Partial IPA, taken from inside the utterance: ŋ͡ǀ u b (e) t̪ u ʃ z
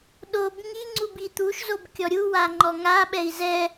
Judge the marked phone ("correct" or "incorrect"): incorrect